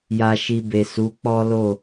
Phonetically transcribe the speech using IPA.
ja˨ʃi˨ be˨su˨˦k͡pɔ˦lo˦˨

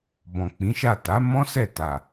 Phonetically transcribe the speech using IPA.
bɔ̃˨k͡pĩ˨˦ʃa˦˨ ta˨˦ mɔ̃˦ sɛ˦˨ta˨

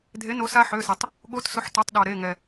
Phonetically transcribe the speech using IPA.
dʱe˨˥no˨˥sa˦˥ ħø˩˧˩se˩tˤ | ɠo˨˥t sʊ˨˥ħto˩˧˩tˤɗo˩ ɾe˩˧˩ ŋɛ˩

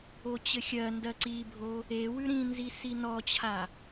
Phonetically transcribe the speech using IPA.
ot͡ɕɘxʲɜndɜ ǀibʱo | ewʉ ɾĩnzi sinɔt͡ɕʰa

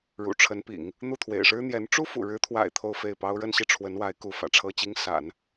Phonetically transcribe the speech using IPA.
ɻṵ˨˩ʈ͡ʂʰə˧˥npḭ˨˩˦ŋ | n̪u˥˩t̪ʰwḛ˨˩ɪ̯ʂɻ̩˥ n̪jɛ˧˥n ʈ͡ʂu˥fṵ˨˩ɻɻ̩˧˥t̪ʰwa̰˨˩ɪ̯ t̪ʰo˥˧ʊ̯fe˥˩ɪ̯pɑ˥ʊ̯ ɻə˥˧nɕi˥˩ʈ͡ʂʰwə˧˥nwa˧˥ɪ̯ ku˧˥fä̰˨˩ʈ͡ʂʰɤ˥t͡ɕi˥ŋ sa̰˨˩˦n

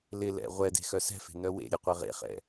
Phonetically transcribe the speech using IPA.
lɪlɛ̰ ʁʷɛde̤ xœsɛ̤fe̤ nœwḛɾʲe qʷɛʁḛχɛ̰

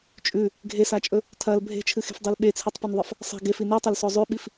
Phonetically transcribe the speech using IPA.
t͡ʃʼʉ | ɡʱesat͡ʃʼɵ | tʰɐl bʱe̤t͡ʃʰɨxe̤fdˤel ɓet͡sʰitˤpɵnðˤɐf | sˤi̤ ɡefi nitˤɐlso zˤʉɓif

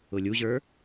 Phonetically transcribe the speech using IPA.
ʊlʲuʑə˞

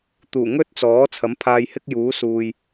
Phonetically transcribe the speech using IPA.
t̪uː˨˩ŋɵ˥t̚t͡sɔː˨˥ t͡sʰɐ˨˥mpʰaː˧jhɪ˥k̚juː˨˥ suː˨j

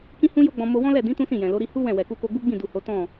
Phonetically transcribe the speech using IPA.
kĩ˦hũ˦jo˦ɡ͡bɔ̃˧ mo˧wɔ̃˦lɛ˦˨ dĩ˨˦ tũ˦sĩ˦˨jɛ̃˨lo˨˦ ɾi˧hu˦ wɛ̃˦˨ wɛ˨ku˧ko˧ɡ͡bu˦ ɡ͡bĩ˦˨du˨ ho˨˦tɔ̃˦˨

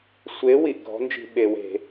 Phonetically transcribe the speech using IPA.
sʷe˨˥ wi˩ʔɡʱɔ̤˨˥nd͡ʒi̤˧˩˧ ɓe˩we̤˧˩˧

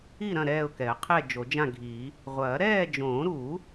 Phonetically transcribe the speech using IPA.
i˥˨ɾɐ̃˥˨ ɾɛː˥˨ʊ̯kɛ˨˩˦ə̯qʰɛː˥˨ d͡ʒo˨˩˦d͡ʒã˥˨ɡʱi˨˩˦ | ʁʷɐː˨˩˦ ɾɛː˥˨d͡ʒõː˨˩˦ɾu˨˩˦

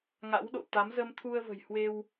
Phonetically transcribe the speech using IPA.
ŋa̰˧˥wɗo̰˧˨t̪a˨˦m zə˧mt̪ʰu˧ə̯və̤˨˩j hwe˧w

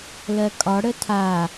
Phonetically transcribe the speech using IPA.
lɜkʼɒ ɽətʰa

